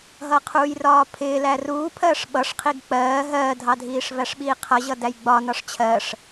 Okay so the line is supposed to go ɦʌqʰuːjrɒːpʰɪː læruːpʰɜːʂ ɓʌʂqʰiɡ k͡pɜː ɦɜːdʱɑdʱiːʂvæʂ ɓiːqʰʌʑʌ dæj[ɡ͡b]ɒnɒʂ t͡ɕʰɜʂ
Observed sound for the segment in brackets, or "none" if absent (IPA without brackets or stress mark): ɡ͡b